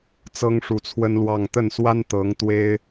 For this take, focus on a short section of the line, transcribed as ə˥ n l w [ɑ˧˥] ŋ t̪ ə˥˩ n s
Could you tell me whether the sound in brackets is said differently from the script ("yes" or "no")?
yes